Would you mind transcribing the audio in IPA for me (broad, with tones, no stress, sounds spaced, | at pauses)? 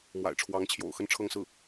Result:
m w a̰˨˩ ɪ̯ ʈ͡ʂʰ w ɑ˧˥ ŋ t͡ɕʰ j o̰˨˩ ʊ̯ x ə˥˧ n ʈ͡ʂʰ ɤ˥˧ ŋ s ɹ̩˥˩